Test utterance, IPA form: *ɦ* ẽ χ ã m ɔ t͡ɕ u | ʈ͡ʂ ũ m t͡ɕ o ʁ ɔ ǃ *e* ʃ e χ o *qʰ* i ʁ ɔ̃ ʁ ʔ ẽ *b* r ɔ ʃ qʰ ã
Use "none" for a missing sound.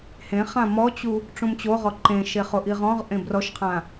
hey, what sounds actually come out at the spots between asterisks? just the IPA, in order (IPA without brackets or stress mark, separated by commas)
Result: h, ẽ, ʔ, b